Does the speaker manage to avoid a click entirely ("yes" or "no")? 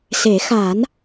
yes